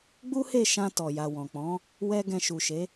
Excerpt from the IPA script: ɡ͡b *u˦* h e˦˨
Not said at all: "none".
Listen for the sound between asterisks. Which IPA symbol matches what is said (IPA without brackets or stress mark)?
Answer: u˦